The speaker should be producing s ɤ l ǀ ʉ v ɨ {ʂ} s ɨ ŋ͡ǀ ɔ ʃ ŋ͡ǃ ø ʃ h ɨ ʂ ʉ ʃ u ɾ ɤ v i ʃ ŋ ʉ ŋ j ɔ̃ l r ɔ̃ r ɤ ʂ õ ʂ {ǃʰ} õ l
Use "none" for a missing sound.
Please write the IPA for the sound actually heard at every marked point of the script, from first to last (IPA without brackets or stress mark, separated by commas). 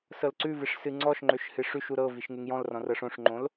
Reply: ʂ, ŋ͡ǃ